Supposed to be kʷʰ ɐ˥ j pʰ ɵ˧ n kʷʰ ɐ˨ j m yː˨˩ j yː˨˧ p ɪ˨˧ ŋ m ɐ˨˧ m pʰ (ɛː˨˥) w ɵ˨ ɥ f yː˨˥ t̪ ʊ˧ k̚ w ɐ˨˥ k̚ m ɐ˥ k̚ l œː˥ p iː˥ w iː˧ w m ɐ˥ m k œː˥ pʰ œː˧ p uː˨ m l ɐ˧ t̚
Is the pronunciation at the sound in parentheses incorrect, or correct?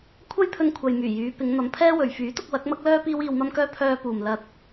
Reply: incorrect